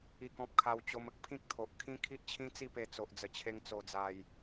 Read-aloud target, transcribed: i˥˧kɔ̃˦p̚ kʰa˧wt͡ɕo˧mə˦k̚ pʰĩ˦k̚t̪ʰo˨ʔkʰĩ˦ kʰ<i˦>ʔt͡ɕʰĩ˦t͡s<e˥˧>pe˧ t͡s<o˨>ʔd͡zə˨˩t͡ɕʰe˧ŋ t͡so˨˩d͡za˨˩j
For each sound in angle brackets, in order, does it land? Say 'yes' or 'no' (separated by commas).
yes, no, yes